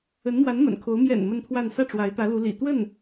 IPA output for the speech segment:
ə˧˥nmwa˧˥nmə̰˨˩n kʰo˧˥ʊ̯ mjɛ̰˨˩n mə˥˧nt̪ʰwa˥˧n sä˥˩ʈ͡ʂwa˧˥ɪ̯t̪ä˧˥ lu˧˥lḭ˨˩ t̪wə˥˩n

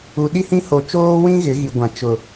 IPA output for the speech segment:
u˨ɗi˦hĩ˦ ho˨t͡ʃoː˦wĩ˦ ɣɪ˨˦ɣi˨ ɡʷã˨t͡ʃʊ˨

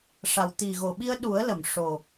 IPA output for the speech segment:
ʂa˨˩wt̪i˨˩ɣo˨˩ɓi˧ə̯ ɗu˨˩˦ə̯lə˨˩˨m ʂo˨˩

